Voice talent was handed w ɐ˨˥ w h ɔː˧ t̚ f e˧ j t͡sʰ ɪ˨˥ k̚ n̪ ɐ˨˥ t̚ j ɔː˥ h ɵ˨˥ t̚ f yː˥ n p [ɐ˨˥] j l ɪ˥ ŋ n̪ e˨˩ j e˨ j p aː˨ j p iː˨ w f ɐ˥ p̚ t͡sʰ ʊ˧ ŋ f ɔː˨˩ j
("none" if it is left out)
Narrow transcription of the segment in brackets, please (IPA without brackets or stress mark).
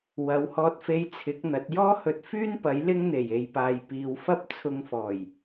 ɐ˨˥